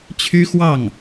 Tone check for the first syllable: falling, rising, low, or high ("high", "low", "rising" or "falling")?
high